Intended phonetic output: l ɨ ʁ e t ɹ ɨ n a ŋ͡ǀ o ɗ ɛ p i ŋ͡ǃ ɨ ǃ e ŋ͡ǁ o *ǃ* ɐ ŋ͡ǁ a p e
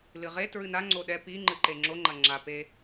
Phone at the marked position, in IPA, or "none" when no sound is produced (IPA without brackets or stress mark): ŋ͡ǃ